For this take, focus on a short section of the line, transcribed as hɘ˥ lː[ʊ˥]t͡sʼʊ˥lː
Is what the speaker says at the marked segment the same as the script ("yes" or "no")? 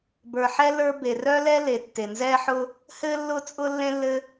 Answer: yes